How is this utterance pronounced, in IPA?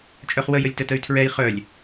t͡ʃʼ œ χ w ə j ə lʲ t ə t ə y̯ tʰ ɹ ɛ i̯ χ œ lʲ

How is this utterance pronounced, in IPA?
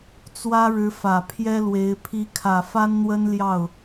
t͡s w ä˥ ɻ ɻ̩˧˥ f ä˨˩ pʰ j ɛ˥ l w e˧˥ ɪ̯ pʰ i˧˥ kʰ ä˨˩ f a˥ n n̪ w ə˥ n l j ɑ˥˩ ʊ̯

